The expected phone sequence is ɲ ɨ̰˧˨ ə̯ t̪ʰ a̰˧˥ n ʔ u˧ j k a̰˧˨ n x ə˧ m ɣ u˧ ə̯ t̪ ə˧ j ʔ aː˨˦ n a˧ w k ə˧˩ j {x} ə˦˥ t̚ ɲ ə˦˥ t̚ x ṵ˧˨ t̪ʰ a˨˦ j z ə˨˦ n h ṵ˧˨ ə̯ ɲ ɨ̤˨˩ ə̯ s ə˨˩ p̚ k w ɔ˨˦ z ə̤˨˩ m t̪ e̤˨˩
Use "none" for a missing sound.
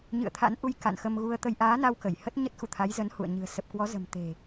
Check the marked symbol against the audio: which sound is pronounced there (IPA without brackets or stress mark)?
h